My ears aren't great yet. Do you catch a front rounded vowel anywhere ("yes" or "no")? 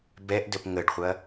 no